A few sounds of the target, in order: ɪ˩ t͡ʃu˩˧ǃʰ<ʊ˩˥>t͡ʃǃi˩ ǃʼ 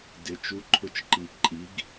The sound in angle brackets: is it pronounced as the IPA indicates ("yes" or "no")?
yes